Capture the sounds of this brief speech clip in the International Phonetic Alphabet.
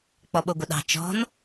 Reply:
k͡p ɔ ɓ o ɡʷ ə ɗ ɑ̤ t͡ʃ ɔ̤ n

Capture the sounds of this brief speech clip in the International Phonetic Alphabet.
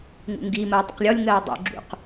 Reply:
ŋ ṵ ŋ ɡ i m ə ʊ̯ dˤ ə̰ q lʲ ɔ lʲ ŋ ɜ ʊ̯ dˤ ṵ ɡ͡ǁ ṵ q

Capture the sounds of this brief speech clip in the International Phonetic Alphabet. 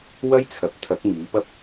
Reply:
w ɐ˥ j t͡sʰ ɐ˨˥ p̚ t̪ʰ ɐ˨˥ k̚ m iː˨˥ p ɐ˥ p̚

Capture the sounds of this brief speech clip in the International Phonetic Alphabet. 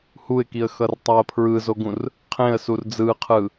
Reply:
h u ɪ̯ k i ə̯ x ʌ r tˤ a ə̯ pʰ ɹ ɯ z o ɡ ũ r | qʰ ẽ ə̯ s u r d͡z ɯ qʰ ɯ

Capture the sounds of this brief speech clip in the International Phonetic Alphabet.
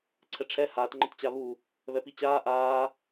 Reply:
ǀʰ ɛ ʈ͡ʂʰ ɛ h aː t ŋ͡ǃ ə t t͡ɕ a β u | β ɛ p i t͡ɕ aː ʔ aː

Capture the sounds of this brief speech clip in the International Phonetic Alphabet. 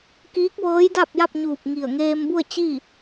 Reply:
k iː˧˥ k̚ ʋ ɤː˧˥ j d a˥˨ p̚ j a˥˨ p̚ ɲ uː˧˩ p̚ ŋ i˧˩ ə̯ ŋ eː˧ m b u˥˨ ə̯ t͡ɕ i˥˨

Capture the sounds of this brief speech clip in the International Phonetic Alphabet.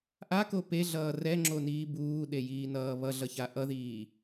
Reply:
ʔ a k o p e ɮ ʌː r ɛ ŋ͡ǁ o n iː b uː ɗ e j iː n ʌː β ʌ ɮ ʌ ç a ʔ ʌ ð iː

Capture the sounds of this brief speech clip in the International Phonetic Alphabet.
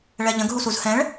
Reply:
ɭ ɛ ʎ ə̃ ɡ ɦ u s u z h ɛ̃ ɭ

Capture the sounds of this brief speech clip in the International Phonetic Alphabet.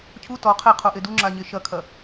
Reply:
cʰ u t ɔ qʰ e qʰ o ʔ e d u ŋ͡ǁ a ɲ e ʃ ɐ kʰ ɐ

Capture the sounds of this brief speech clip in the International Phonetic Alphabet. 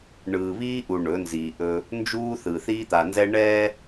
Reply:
ɳ ɯː˨ β iː˦ ʔ u˨ ɳ ɵ˨˦ n z iː˨ ʔ ɵ˦ | n d͡ʒ uː˦ θ ɯ˨ θ iː˦ t̪ a˨ n z ɛ˦ ɳ ɛː˦

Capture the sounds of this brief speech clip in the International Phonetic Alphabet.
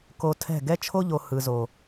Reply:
k o˧ tʰ ɛ̤˦˨ ɡ ɛ˦ t͡ʃʰ o˦ ʎ o˨ h ɯ˨ z o˨

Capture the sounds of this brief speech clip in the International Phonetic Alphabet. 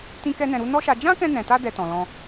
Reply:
t ĩ˦ k ɛ˦ n ɛ̃˧ ɾ u˦ n ɔ˦ ʃ a˧ d͡ʒ ã˦ k ɛ̃˧ n ɛ̃˨ t a˧ d ɛ˧ t ɔ̃˨ l ɔ̃˧

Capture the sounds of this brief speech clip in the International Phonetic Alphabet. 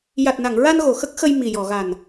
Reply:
j a˨˩ t̚ n a˨˩˨ ŋ ɹ a˧ n ɣ o˨˩ x ə˦˥ k̚ x ə˧ j m i˨˩ j ɔ˨˩˨ ɣ a˨˩ n

